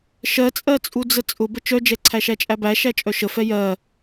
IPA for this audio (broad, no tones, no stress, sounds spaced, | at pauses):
ʃ ɜ t͡sʼ ɜ t͡sʼ u d͡z ə t͡sʼ ʊ b ə t͡ʃ œ d͡ʒ ɛ ǀʰ æ ʃ æ t͡ʃʼ æ b æ ʃ æ t͡ʃʼ œ ʃ ə f ɛ j ɜ